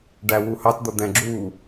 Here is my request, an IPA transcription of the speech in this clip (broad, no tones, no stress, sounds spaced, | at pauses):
ɖ æ w u h ɑ t d̪ ʌ d̪ ɛ̃ ɡ͡ǁ u